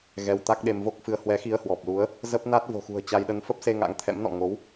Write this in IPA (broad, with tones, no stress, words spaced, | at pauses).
ɣɛ˧wt̪a˦˥k̚ɗe˧m vo˦˥k̚fɨ˧ə̯ hwɛ˨˦xi˧ə̯hwɔ˨˩p̚lu˨˦ə̯ | zə˦˥p̚na˦˥t̚ vo̤˨˩xṳ˨˩ə̯ t͡ɕa˧jɗə˧n fə˦˥p̚se˧ ŋa̰˧˥ŋt̪ʰɛ̰˧˥mnɔ̰˧˨ ŋo˨˦w